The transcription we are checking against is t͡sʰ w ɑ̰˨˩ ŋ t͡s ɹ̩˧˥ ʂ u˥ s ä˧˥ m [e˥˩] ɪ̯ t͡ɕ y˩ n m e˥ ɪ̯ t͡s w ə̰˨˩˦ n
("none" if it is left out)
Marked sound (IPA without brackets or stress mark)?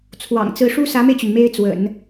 e˧